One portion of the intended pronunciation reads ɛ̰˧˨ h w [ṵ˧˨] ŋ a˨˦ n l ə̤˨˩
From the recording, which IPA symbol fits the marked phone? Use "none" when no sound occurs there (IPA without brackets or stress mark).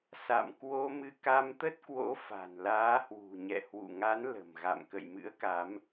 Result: ṵ˧˨